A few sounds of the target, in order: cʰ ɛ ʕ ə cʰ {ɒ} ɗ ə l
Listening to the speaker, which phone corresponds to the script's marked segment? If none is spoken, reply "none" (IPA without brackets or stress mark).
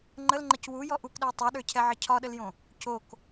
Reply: ɒ